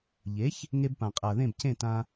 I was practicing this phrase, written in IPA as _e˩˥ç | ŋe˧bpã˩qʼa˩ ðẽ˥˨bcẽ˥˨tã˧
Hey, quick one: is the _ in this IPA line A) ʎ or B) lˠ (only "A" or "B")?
A